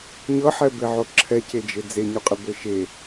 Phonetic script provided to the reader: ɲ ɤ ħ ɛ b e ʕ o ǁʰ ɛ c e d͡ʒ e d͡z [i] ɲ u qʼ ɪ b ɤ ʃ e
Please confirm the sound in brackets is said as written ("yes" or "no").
no